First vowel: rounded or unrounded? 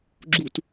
rounded